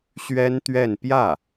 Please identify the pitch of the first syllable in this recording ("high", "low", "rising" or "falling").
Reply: high